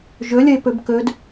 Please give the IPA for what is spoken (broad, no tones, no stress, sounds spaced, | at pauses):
ʒ ɵ lʲ ə ɪ̯ p ɵ b k ɵ d